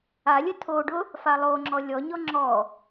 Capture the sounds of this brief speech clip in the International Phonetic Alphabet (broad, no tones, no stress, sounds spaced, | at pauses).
a lʲ ə tʰ o ɖ ʊ | f a lˠ o ŋ͡ǁ ɔ lʲ ɔ ɲ ɔ ŋ͡ǁ ɔ